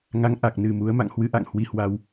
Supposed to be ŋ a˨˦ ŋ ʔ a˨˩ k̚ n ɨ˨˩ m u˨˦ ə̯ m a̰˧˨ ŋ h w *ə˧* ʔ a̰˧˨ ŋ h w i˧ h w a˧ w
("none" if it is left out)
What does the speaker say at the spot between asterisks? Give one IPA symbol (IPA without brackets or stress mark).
ɨ˧